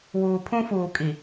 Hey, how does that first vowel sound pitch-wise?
low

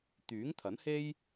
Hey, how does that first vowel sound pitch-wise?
rising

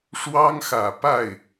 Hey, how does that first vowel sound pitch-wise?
high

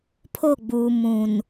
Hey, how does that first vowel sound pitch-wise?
falling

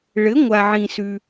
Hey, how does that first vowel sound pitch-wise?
rising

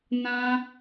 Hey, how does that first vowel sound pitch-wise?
high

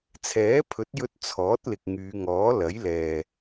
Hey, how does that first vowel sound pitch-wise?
rising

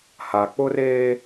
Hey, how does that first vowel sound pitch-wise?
low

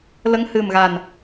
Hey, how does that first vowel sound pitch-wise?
rising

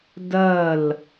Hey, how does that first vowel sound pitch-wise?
falling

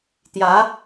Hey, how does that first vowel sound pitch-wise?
rising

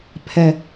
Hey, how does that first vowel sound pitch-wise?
high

